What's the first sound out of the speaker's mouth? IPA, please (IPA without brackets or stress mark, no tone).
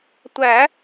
tʷ